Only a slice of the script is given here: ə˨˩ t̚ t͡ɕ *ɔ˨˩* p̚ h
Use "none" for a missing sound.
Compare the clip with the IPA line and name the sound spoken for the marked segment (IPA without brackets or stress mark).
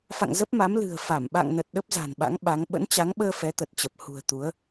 ə˨˩